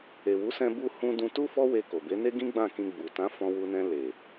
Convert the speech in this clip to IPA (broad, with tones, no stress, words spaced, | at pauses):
e˨wu˨˦sɛ̃˧ bu˧hũ˧ dũ˧tu˦ fɔ˦we˧ ko˨be˨˦ne˦ɡĩ˦ ɡ͡bã˦˨kĩ˧ ɡ͡bu˨tã˨˦ fɔ̃˧wu˧nɛ̃˧ le˨